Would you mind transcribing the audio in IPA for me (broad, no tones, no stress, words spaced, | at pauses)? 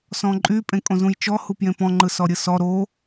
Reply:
sɔ̃ǃʼy pʼẽkʼõzũjt͡ʃɔ hupjẽpɔ̃ ŋ͡ǃɯsɔɾʲɯsɔ ɾo